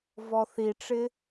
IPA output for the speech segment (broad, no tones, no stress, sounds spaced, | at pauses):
v ɔ θ i ʈ͡ʂ ɪ